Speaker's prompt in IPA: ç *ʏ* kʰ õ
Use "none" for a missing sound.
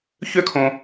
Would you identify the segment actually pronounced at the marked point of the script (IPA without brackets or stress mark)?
ʏ